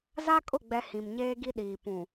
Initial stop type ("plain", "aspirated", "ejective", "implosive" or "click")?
ejective